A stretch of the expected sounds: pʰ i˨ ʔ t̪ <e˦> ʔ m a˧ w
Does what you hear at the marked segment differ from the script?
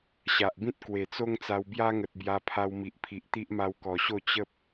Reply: yes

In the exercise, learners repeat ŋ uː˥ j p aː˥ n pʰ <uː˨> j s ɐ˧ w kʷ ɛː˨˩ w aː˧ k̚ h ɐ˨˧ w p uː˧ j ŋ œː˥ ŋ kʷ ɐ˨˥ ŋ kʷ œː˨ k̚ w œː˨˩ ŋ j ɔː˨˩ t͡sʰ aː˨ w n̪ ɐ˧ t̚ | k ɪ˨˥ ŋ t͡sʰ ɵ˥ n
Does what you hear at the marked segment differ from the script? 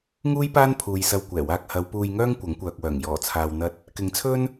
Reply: no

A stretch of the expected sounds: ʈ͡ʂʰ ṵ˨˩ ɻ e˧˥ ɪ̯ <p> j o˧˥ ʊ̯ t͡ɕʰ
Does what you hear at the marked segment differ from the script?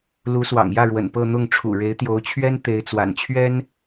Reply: yes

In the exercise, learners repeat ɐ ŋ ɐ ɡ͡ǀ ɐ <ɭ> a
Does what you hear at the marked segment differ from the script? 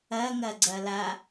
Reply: yes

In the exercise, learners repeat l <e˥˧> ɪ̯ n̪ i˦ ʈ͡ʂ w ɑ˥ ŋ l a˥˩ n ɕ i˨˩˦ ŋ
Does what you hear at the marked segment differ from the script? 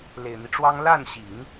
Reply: yes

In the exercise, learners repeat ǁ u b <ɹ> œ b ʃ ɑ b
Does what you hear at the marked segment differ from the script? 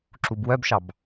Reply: yes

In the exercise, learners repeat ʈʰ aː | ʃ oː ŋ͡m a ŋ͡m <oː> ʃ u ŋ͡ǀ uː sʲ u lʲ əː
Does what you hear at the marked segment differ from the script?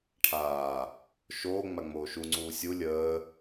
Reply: no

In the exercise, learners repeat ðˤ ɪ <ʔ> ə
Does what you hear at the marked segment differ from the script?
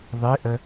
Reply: no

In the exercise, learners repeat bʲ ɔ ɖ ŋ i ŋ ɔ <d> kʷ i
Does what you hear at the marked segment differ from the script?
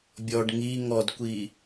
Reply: no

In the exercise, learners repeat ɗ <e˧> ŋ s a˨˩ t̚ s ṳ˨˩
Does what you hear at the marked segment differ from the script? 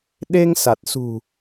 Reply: no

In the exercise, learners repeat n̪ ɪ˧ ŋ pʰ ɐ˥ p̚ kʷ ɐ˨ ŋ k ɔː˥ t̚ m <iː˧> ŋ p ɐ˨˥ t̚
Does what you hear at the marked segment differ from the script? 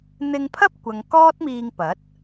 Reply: no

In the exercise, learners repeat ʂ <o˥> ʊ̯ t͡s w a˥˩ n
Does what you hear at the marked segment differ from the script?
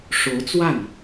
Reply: yes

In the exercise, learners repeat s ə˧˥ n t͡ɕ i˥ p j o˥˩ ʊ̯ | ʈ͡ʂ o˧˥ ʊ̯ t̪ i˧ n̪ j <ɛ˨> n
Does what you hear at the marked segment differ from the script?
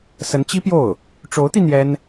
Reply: yes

